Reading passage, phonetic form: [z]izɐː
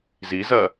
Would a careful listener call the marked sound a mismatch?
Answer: no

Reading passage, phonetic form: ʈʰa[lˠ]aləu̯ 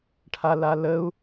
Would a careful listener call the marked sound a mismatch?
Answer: yes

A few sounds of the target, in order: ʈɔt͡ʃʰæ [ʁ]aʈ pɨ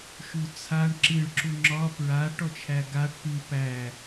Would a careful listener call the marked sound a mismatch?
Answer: yes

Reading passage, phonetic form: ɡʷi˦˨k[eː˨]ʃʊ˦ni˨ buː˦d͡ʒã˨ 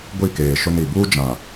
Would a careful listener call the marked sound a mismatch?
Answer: no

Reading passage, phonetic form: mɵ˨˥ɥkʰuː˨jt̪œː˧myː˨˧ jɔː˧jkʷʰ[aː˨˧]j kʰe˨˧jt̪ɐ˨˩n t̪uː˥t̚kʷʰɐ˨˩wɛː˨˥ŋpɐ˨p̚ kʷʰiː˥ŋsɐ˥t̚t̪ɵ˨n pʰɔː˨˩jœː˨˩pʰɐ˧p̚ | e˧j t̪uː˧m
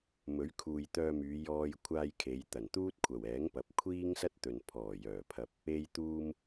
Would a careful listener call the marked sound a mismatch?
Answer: yes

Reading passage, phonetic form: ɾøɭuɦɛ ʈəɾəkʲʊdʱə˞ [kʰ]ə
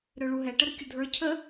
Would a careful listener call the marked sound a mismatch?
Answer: yes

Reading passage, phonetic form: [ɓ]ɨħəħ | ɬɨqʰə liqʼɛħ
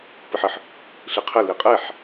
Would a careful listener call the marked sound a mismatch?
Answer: yes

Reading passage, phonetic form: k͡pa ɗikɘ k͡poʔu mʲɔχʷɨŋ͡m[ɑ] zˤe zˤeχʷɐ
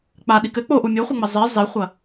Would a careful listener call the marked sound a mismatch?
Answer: yes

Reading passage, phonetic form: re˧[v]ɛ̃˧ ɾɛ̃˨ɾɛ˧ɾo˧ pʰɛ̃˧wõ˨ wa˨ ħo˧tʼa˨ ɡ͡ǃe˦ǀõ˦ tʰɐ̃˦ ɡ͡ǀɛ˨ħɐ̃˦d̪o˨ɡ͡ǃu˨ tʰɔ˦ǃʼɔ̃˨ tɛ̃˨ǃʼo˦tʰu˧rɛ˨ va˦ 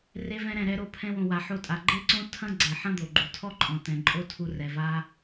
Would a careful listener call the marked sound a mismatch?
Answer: no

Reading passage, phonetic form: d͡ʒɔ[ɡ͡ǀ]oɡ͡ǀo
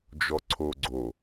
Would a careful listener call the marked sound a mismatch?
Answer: yes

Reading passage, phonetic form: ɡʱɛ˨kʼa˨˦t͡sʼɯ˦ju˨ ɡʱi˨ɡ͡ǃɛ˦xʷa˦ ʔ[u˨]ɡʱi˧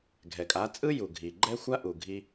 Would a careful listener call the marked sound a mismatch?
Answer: no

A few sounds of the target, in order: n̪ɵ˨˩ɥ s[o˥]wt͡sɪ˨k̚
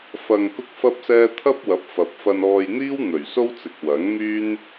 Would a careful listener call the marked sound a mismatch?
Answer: no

